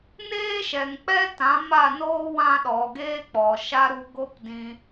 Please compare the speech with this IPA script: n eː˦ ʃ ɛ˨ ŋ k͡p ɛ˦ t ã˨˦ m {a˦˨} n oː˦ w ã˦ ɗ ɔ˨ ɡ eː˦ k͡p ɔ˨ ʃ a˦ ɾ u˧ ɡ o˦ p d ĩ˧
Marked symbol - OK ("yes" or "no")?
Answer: yes